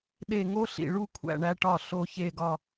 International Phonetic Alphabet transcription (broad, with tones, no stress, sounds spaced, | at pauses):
ɗ e˧˩ ŋ o˥ ɬ ḭ˧˩ ɭ u˥˧ kʷʰ æ̰˧˩ ɳ æ˧ ʈ ɒ˧˩ ɬ o˥˧ ç e˥˧ ɡ ɒ˥˧